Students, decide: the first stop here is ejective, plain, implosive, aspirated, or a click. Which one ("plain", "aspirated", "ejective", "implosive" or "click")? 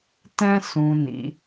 plain